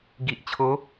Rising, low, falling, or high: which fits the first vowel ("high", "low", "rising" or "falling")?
low